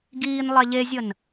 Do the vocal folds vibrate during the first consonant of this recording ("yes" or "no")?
yes